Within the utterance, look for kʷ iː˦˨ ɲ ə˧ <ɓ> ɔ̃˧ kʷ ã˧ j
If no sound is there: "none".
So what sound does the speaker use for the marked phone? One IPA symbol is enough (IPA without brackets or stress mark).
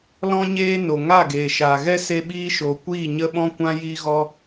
ɓ